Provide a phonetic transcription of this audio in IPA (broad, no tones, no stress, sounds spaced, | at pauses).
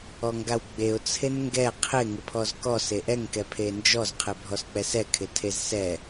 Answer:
ɔ ŋ ɡ a w ɡ͡b e ʊ̯ t͡sʰ e n ŋ ɡ ɛ qʰ ɪ ŋ ɪ pʰ ɔ z k ɔ s e ʔ ɛ ŋ k ɛ pʰ e n d͡ʒ ɔ z qʰ e bʱ ɔ s k͡p ɛ s ɛ kʰ ɪ tʰ e z s ɛ